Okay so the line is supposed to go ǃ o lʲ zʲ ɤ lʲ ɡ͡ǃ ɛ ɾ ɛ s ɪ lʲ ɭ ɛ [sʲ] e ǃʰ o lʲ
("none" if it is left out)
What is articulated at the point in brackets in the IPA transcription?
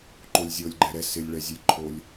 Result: zʲ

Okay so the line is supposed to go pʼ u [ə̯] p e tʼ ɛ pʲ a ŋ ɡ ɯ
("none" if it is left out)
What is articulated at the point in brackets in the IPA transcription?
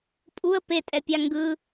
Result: ə̯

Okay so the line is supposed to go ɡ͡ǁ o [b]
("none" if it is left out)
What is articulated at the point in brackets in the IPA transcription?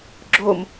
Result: m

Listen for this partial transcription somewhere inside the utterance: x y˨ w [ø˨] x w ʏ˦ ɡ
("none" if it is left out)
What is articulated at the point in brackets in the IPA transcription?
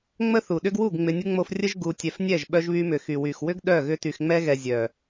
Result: y˨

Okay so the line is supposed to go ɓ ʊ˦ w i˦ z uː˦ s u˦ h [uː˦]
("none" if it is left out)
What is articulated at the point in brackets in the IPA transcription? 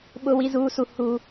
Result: u˦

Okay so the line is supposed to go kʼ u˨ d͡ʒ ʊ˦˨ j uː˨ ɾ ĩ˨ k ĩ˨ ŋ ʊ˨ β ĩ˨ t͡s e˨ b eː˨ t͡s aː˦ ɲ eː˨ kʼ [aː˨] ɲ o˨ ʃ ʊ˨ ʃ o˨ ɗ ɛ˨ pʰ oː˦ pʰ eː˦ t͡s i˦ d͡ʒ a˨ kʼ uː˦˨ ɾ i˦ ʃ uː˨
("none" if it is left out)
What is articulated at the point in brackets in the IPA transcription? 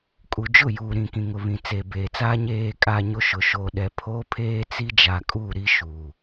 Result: a˨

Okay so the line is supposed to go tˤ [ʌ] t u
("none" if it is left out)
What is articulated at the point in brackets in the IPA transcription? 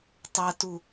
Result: ʌ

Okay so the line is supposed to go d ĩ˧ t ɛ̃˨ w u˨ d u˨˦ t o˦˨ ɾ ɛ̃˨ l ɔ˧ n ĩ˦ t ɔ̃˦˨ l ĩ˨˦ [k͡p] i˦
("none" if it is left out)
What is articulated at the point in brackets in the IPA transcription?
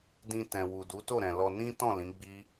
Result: ɡ͡b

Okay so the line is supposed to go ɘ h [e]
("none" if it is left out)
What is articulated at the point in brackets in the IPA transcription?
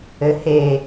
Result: e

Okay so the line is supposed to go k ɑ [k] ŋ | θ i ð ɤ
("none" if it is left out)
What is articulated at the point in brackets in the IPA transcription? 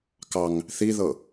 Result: none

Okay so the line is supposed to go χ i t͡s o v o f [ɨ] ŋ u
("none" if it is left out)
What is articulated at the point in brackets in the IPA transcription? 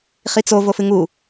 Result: ɨ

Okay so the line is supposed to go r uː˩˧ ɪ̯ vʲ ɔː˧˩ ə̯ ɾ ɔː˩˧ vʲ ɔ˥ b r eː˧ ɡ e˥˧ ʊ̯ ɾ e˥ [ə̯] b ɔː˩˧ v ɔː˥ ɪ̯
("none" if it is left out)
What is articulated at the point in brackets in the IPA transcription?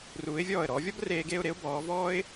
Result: ʊ̯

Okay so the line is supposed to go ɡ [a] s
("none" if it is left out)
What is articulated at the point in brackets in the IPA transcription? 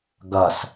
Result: ɐ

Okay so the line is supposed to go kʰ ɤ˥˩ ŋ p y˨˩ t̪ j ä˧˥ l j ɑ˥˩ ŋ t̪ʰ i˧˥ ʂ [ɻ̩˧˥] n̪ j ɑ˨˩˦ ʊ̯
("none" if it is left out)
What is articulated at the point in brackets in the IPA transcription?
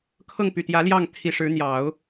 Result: ɻ̩˧˥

